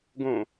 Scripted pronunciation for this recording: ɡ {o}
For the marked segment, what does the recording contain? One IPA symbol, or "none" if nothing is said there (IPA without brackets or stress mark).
õ